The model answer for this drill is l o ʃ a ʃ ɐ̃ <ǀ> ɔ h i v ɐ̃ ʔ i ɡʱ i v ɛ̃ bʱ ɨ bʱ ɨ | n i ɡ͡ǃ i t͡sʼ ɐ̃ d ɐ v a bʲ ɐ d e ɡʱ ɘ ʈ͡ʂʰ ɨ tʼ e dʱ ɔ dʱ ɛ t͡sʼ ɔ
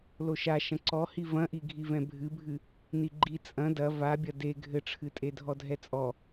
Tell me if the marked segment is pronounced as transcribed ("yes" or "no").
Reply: yes